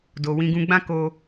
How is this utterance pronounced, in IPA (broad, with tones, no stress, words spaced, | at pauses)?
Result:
do˨ wĩ˧ɡũ˧ɡ͡bã˦ ko˧